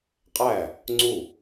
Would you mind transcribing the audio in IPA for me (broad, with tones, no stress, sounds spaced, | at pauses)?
qʼ æ˥˩ | ŋ͡ǀ u˥˩